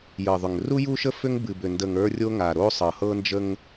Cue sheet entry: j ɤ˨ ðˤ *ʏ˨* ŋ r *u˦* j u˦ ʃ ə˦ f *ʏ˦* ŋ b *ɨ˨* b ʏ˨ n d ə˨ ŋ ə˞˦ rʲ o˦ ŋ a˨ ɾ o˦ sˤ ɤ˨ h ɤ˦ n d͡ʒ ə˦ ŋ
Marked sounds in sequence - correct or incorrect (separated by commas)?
correct, correct, correct, correct